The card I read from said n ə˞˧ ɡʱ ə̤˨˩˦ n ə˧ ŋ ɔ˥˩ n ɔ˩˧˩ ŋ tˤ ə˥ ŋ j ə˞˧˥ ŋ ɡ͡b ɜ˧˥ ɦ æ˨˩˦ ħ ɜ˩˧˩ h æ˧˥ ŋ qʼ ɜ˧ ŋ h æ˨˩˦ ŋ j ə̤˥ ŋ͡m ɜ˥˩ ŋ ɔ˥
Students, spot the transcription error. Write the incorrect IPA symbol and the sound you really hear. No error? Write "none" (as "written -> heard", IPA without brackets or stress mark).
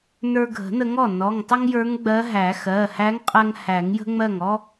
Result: ħ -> x